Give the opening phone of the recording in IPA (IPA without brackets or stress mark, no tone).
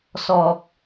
s